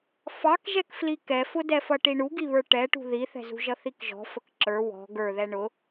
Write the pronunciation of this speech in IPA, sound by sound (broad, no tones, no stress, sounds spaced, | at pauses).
f ɑ k ʒ ɛ k f l i k ɛ f ʊ d ɛ f ʌ ʈ i ɳ u ɡ i β ə˞ ʈ ɛ ʈ ṳ ð i θ ɛ̤ z ṳ ʒ ʌ θ i k ʒ ɔ̤ f ə k ǁ ə˞ w ɔ̤ ɡ ə˞ ð ɛ ɳ ʊ